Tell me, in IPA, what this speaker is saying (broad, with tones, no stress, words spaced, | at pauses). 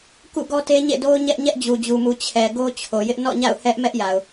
kṵ˦˨ɡɔ˦te˦ ɲḛ˦˨do˦ʊ̯ɲɛ˦ʔ ɲɛ˦ʔd͡ʑu˨d͡ʑu˨mu˨ t͡ɕʰɛ˨ ɡo˦t͡ɕʰo˨jɪ˦ʔ nɔ̰˦˨ɲa̰˦˨ʊ̯ hɛ˦ʔ mɛ˦ʔ ja˨ʊ̯